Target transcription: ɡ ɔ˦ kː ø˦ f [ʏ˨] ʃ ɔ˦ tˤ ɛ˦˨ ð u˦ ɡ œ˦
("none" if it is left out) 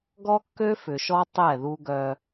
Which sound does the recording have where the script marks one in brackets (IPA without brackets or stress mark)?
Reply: ʏ˨